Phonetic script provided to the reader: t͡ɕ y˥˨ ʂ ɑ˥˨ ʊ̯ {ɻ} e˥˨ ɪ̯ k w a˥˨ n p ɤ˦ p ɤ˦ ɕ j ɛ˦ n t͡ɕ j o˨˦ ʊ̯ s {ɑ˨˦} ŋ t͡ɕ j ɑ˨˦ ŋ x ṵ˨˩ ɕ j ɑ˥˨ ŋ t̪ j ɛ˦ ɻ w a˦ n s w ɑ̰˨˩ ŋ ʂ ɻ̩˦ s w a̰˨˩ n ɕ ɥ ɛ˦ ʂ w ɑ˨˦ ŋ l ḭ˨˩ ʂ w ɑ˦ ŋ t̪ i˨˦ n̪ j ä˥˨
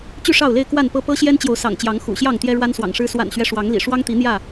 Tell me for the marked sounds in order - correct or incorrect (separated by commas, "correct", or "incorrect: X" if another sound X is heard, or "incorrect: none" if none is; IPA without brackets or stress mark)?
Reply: incorrect: l, incorrect: ɑ̰˨˩